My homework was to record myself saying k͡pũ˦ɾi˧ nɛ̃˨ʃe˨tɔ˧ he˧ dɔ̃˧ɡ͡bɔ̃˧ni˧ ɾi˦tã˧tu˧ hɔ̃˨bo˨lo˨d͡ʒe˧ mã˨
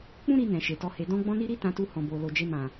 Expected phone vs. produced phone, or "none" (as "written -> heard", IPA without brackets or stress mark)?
none